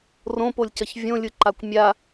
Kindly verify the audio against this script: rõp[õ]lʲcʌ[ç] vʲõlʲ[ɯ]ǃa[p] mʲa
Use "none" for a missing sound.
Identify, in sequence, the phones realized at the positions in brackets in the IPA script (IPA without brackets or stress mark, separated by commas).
o, ç, ɯ, kʷ